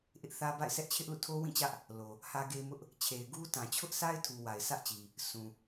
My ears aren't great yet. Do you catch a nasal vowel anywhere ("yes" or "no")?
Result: yes